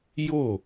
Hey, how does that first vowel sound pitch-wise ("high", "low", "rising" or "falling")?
falling